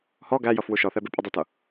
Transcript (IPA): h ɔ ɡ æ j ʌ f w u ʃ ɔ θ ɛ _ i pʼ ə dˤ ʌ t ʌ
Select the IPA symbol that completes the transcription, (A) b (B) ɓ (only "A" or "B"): A